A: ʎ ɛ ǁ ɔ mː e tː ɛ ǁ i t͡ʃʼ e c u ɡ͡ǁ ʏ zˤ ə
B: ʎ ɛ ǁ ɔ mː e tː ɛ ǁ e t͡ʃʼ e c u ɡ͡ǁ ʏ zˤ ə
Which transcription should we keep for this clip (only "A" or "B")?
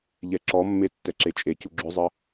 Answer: B